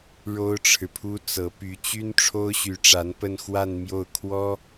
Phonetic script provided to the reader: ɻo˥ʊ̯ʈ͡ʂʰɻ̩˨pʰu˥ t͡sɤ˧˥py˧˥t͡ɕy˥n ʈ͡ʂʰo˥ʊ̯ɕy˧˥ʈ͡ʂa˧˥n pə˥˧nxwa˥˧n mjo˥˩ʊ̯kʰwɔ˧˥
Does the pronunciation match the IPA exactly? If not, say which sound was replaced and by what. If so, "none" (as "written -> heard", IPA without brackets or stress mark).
ɔ˧˥ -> ɔ˥